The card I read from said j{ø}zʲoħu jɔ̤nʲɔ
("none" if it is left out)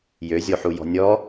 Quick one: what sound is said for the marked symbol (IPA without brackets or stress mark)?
ø